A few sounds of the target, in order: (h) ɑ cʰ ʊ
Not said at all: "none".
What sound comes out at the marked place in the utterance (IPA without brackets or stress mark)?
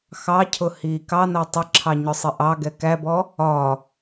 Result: x